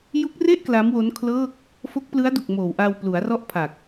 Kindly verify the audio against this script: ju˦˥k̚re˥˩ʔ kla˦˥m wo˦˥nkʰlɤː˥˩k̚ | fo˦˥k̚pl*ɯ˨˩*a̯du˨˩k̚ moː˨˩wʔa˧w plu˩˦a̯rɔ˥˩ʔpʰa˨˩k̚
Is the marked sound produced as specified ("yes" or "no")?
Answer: no